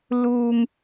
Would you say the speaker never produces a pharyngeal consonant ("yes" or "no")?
yes